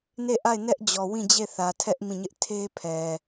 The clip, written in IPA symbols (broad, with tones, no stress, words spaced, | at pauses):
ne˦˨ʔa˦˨ɪ̯nɛ˦ʔd͡ʑɔ˨ wĩ˦˨d͡ʑe˦˨θä˨tʰɛ˦ʔ mĩ˦˨ɲɪ˦ʔ tʰe˦ pʰɛ˨